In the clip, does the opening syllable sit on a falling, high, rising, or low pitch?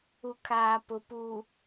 low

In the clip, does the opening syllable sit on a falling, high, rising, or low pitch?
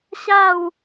falling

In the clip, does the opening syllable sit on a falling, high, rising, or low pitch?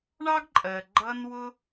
high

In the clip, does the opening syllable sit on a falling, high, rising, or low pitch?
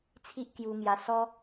high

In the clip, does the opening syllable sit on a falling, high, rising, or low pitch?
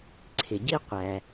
low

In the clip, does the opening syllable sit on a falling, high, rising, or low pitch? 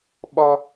high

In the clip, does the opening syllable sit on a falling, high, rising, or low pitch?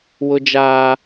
high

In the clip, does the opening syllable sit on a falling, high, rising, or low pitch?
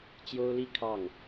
high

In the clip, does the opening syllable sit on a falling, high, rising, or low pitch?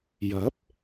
rising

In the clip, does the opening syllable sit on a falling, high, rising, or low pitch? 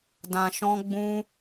low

